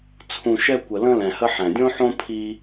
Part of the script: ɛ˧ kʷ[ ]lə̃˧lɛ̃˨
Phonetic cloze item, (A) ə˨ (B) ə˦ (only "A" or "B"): A